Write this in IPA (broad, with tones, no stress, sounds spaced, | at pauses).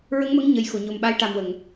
ɹ ə˧˥ ŋ m ə˧˥ ŋ ɲ ə˨˩ j x o˨˩˨ ɲ o˨˩ m ɓ a˧˥ j ʈ a˨˩ m w ə˨˩˨ ŋ